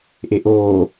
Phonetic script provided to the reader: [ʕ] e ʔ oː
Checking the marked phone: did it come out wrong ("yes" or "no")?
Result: yes